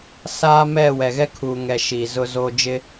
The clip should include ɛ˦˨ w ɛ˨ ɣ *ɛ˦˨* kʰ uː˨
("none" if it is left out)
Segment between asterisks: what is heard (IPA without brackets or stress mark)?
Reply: ɛ˦